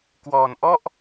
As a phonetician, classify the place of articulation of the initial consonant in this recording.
velar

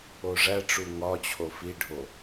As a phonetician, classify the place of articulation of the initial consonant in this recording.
retroflex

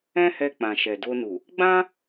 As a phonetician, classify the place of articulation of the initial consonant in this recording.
glottal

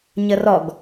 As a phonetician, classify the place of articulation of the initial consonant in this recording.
palatal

